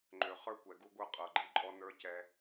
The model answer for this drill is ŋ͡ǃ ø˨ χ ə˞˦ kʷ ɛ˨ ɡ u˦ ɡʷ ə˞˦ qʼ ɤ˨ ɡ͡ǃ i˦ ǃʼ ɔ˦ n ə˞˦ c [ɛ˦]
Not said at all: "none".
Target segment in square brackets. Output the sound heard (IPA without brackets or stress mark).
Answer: ɛ˦